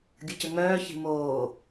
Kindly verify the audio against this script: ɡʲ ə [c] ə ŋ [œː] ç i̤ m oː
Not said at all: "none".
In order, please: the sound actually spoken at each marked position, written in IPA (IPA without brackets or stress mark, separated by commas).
c, œː